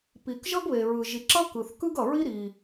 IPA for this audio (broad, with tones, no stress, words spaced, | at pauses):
pi˩kʒʌ˥ɡβe˩ɹɯ˩ ʒi˩ǁʌ˥ kɯ˩θkɯ˥ɡʌ˩ɹi˥ ɾi˩